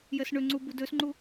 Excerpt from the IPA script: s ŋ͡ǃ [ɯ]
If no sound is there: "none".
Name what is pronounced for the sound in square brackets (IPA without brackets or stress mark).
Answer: u